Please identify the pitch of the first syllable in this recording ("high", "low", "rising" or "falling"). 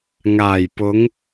low